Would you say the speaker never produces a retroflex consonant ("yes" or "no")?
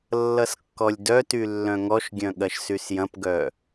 yes